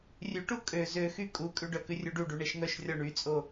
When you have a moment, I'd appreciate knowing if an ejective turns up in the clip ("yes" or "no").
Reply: yes